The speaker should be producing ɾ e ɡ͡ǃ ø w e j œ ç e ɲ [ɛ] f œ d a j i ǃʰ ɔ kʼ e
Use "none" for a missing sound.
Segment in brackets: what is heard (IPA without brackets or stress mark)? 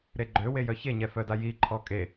ɛ